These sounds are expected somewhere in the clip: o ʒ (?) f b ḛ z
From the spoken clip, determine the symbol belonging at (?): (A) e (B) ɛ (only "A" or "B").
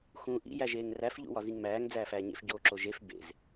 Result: A